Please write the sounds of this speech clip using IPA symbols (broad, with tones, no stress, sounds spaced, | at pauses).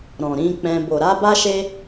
ɾ ɔ̃˨ ɾ ĩ˧ k͡p ɛ̃˧ b o˨ ɾ a˧ b a˦ ʃ e˦